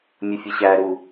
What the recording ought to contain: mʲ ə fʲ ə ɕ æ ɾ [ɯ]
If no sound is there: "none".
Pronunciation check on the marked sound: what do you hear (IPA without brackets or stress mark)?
u